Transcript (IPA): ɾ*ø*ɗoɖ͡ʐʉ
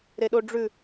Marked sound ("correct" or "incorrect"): incorrect